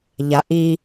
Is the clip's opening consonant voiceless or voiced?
voiced